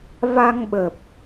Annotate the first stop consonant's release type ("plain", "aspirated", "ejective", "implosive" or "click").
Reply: implosive